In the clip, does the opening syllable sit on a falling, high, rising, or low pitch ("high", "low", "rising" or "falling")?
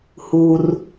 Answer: low